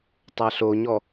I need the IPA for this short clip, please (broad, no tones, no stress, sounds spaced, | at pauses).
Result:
tˤ a ɬ o ɲ ɔ